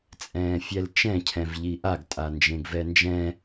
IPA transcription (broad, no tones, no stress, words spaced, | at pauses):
t͡sʼɛ̃ːfʲɛlt͡ʃɛ̃ cʰɛ̃vʎiʔaɡ tʼand͡ʒẽɡvɛnd͡ʒɛ̃